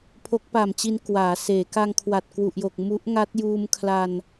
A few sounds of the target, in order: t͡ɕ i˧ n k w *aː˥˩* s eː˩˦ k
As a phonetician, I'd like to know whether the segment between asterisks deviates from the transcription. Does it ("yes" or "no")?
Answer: yes